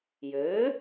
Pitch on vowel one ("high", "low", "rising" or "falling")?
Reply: rising